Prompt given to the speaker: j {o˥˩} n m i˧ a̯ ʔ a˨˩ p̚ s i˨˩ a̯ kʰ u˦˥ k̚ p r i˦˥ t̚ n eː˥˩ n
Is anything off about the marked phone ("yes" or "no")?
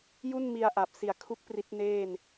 yes